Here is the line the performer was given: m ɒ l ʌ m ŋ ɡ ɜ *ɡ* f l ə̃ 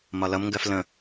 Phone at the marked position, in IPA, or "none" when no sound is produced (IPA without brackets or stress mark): none